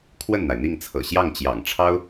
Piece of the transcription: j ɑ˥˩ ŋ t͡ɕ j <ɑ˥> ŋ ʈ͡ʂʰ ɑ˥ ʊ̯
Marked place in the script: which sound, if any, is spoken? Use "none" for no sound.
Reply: ɑ̰˨˩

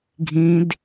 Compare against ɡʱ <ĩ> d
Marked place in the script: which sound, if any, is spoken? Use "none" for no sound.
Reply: ĩ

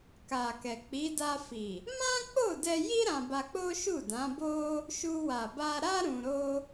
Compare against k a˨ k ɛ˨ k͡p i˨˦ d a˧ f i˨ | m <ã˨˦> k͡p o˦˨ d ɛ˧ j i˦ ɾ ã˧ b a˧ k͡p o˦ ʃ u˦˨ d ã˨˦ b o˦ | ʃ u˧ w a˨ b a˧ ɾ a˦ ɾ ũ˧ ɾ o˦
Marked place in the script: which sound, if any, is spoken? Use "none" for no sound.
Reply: ã˦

